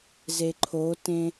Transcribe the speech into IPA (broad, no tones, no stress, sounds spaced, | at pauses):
z e ǃʰ o t ẽ